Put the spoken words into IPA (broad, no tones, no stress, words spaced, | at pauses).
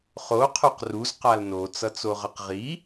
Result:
χo qʰoqruz qalno t͡sʌt͡soʁʌqʁi